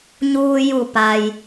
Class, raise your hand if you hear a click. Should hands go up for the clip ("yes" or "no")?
no